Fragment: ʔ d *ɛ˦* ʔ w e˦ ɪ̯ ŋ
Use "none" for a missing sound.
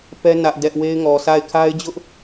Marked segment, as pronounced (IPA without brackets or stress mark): ɛ˦